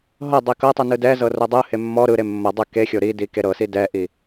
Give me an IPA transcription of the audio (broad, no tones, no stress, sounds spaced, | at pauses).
ɦ ɤ dˤ i k ɤ tˤ ɯ n ɯ d ɛ z ɤ r o dˤ ɯ h e mː ɔ ɾ ɯ ɾ e mː ɤ dˤ ɯ k e xʲ o ɾ i d i k e ɾ ɤ s i d ɛ ʔ i